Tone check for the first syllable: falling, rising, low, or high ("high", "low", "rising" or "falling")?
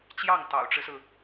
falling